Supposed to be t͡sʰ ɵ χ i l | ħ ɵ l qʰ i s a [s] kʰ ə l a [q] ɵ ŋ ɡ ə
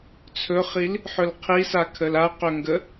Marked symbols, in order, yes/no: no, yes

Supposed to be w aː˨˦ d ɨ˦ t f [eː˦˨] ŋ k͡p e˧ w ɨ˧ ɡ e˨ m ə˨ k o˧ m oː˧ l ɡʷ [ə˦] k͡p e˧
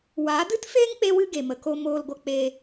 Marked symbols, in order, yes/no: no, no

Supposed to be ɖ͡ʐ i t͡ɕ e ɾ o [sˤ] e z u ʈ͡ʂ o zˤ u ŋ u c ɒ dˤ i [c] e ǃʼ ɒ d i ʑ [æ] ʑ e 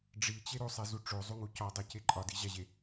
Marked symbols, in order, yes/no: yes, yes, yes

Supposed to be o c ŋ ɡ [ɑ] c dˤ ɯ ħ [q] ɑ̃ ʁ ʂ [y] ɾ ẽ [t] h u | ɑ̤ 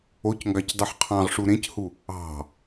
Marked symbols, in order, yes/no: yes, no, no, no

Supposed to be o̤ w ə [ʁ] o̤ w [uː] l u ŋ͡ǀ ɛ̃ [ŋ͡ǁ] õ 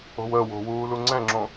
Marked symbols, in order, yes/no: no, yes, yes

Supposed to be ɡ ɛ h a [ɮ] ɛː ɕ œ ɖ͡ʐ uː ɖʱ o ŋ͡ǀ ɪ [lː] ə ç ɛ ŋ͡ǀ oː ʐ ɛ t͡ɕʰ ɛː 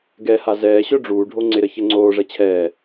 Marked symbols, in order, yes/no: no, no

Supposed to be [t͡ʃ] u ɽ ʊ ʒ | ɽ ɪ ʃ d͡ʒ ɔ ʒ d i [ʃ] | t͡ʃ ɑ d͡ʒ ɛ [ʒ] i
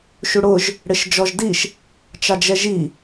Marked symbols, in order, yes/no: no, yes, yes

